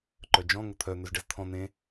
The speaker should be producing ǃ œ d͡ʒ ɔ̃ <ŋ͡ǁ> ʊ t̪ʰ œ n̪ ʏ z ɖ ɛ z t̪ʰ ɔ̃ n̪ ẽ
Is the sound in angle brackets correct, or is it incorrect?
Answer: incorrect